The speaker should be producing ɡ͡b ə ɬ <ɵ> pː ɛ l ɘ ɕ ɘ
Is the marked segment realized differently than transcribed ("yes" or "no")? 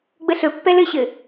no